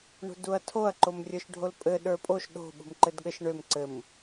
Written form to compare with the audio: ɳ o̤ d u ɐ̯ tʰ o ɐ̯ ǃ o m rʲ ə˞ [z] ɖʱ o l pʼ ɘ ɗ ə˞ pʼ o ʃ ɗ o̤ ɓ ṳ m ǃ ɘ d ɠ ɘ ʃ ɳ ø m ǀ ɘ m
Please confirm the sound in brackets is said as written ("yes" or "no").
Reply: no